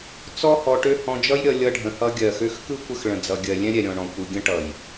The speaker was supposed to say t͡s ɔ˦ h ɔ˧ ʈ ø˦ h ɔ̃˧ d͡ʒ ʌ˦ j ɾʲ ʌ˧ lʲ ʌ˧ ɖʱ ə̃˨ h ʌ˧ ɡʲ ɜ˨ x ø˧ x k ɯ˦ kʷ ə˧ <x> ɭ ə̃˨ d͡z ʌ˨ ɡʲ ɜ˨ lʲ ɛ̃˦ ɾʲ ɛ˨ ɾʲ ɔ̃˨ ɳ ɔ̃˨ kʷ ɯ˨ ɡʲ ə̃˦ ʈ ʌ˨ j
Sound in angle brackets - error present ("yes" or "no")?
no